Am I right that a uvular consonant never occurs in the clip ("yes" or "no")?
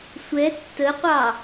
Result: no